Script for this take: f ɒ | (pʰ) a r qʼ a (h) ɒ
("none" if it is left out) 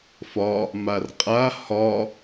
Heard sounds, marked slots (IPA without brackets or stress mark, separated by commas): m, h